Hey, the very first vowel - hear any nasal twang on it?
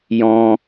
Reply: yes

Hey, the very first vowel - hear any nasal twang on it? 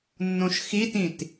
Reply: yes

